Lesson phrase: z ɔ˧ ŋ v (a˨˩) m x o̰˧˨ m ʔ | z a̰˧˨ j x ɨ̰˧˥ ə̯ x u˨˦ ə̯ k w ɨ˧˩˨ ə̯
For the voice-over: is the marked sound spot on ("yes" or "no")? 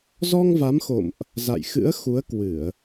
no